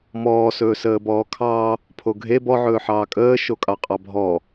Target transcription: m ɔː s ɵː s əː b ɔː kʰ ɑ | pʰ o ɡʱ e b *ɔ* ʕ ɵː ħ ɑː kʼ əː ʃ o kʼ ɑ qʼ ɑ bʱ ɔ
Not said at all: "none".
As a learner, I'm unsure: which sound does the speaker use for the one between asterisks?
ɔ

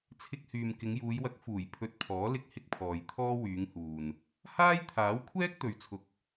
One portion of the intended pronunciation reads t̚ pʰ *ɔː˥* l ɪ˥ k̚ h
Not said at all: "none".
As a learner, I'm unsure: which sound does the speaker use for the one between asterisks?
ɔː˨˥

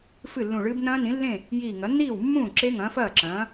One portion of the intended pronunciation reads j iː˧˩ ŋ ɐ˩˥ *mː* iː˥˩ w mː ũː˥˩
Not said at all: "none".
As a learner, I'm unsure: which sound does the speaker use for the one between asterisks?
nː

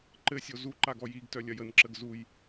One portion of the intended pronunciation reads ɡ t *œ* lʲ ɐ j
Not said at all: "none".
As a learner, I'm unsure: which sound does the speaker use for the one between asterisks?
œ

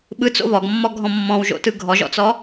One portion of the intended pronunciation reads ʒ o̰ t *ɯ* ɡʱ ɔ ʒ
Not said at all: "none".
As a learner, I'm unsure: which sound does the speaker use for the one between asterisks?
ɯ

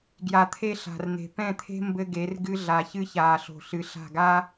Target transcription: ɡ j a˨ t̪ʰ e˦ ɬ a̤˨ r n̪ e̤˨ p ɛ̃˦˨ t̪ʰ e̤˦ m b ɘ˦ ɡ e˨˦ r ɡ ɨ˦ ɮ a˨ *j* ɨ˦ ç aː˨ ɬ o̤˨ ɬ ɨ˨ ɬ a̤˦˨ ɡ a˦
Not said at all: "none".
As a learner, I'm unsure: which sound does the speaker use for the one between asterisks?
ç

